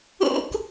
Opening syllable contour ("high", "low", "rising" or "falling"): high